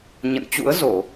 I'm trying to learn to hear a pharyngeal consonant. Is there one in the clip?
no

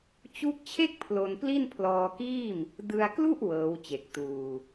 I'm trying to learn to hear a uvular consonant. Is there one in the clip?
no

